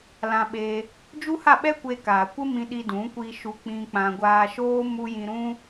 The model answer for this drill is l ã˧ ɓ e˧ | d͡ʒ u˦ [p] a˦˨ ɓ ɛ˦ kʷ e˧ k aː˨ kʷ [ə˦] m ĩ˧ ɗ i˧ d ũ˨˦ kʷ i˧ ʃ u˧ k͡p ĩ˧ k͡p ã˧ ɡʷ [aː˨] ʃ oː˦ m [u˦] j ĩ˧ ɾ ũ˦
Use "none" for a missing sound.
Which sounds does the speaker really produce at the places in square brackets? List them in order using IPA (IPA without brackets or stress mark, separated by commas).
h, ə˦, aː˧, u˦